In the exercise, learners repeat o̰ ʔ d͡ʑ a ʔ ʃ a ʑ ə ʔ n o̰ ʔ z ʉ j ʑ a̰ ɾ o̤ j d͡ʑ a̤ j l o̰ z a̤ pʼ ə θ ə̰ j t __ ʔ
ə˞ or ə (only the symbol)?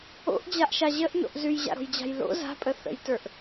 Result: ə˞